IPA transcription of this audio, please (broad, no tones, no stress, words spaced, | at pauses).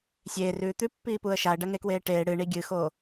sʲeːrʉː t̪ʉpːiːpuə̯ ʃaə̯ɖɐŋekweː ʈeː ɽɨɳi ɡʲɨxoː